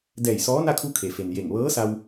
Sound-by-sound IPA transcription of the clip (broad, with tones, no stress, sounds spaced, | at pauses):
d ɛː˧˩ j s ɔː˧˥ n a˥˨ kʰ u˧ kʰ e˩ f e˩ n j e˧˩ ŋ ʋ ɤː˧˥ s a˧ w